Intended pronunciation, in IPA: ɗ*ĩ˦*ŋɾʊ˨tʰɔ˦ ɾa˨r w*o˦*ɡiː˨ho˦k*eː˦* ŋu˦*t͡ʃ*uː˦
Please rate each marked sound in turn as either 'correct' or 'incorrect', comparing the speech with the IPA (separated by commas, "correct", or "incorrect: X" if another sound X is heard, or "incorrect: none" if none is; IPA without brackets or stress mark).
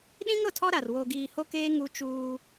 correct, incorrect: o˨, correct, correct